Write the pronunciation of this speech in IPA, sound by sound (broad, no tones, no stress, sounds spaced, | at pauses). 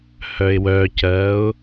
h œ ɪ̯ w œ c ɜ ʊ̯